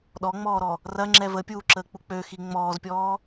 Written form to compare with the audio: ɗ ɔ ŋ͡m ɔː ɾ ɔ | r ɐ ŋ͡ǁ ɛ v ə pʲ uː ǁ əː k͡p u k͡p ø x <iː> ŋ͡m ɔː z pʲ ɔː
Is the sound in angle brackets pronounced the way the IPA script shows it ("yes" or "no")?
no